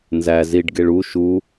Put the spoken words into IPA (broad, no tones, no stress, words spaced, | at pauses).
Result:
nzæ ziɖɡeɭ u ʃu